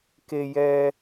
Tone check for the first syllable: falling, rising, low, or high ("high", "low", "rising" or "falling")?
low